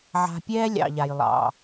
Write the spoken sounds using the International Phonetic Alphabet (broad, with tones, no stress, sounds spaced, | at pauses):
ʕ a̤˧ pʲ ɛː˦ lʲ ɑ̰˨ ʎ a˨ j lˠ ɑ̰˨